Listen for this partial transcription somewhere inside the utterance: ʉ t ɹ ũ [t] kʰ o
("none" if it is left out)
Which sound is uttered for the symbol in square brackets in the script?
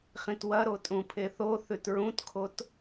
t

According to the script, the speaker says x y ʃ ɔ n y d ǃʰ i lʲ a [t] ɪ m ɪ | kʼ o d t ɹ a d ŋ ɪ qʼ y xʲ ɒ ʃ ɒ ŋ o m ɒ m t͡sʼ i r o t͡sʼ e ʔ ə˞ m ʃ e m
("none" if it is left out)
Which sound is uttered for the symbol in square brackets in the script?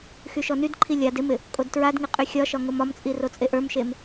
d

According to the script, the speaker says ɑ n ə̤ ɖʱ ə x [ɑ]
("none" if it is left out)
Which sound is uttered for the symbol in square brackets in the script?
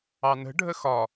ɒ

